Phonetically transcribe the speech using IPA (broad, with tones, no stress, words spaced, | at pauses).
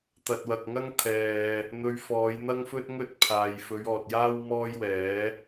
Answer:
t̪ɐ˨t̚wɐ˨k̚ŋɐ˥ŋt̪ʰɛː˨ | n̪ɵ˧ɥfɔː˨˧jn̪ɐ˥ŋfɵ˥t̚ ŋɵ˥t̚pʰaː˨j fɵ˨˧ɥɔː˨t̚jaː˥w mɔː˥jwɛː˨˥